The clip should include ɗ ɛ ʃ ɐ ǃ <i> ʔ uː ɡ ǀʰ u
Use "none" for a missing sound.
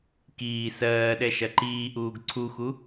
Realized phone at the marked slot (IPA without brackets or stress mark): iː